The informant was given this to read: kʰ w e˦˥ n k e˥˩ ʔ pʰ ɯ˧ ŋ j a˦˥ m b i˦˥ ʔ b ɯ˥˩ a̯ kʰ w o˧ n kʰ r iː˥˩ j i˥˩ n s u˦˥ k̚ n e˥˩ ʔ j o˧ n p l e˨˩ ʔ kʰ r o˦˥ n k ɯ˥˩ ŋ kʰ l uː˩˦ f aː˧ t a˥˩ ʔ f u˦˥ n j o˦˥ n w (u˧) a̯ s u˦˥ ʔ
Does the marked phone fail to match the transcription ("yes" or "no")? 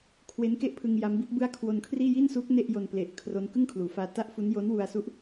no